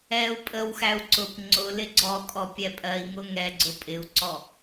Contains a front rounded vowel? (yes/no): no